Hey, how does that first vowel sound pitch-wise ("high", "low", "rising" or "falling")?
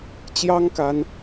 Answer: high